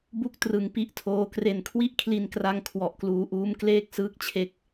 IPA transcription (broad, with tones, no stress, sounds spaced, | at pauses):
b u˥˩ k̚ t r ɯ˧ ŋ p i˦˥ ʔ tʰ oː˦˥ k r e˨˩ n kʰ w i˦˥ ʔ kʰ l i˧ n k r a˧ ŋ kʰ w ɔ˨˩ ʔ k l uː˧ ʔ uː˦˥ m k l eː˥˩ k̚ s ɯː˥˩ k̚ t͡ɕʰ e˦˥ k̚